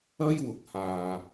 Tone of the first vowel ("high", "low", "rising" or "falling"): high